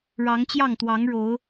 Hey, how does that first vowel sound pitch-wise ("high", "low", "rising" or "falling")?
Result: rising